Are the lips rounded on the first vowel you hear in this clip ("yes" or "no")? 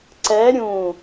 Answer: no